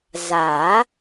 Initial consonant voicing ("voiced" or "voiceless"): voiced